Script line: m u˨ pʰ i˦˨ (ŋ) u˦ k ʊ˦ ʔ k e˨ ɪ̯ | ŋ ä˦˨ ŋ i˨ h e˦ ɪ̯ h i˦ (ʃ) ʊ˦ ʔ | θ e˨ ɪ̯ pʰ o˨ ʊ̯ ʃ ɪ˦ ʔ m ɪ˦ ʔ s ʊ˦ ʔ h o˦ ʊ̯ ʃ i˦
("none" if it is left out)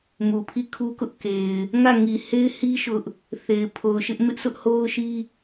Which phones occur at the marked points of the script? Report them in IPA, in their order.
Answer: kʰ, ʃ

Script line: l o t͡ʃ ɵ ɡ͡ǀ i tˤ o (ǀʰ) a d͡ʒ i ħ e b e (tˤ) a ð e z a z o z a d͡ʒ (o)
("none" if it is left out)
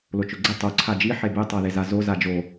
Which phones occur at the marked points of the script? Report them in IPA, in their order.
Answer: ǀʰ, tˤ, o

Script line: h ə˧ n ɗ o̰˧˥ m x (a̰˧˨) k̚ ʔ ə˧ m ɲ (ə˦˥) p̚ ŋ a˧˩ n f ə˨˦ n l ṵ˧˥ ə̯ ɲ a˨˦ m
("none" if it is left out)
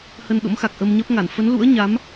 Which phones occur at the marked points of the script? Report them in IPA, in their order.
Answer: a˨˩, ə˦˥

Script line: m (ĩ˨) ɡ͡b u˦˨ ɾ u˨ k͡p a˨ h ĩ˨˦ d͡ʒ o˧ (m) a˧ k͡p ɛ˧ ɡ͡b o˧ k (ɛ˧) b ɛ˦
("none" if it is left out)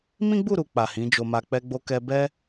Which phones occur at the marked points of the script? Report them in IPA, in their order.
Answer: ĩ˦, m, ɛ˧

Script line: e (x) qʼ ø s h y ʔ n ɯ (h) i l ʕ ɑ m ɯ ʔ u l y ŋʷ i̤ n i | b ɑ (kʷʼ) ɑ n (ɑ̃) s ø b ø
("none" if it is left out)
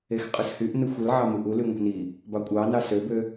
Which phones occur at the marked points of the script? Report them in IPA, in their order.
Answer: x, xʷ, kʷʼ, ɑ

